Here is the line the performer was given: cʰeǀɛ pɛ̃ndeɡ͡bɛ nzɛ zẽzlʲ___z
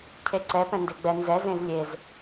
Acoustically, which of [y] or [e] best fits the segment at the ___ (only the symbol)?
e